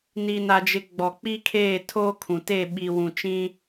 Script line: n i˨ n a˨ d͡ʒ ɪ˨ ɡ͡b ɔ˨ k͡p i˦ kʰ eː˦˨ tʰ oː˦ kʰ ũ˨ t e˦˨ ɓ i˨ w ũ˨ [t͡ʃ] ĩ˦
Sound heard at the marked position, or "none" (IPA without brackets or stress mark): t͡ʃ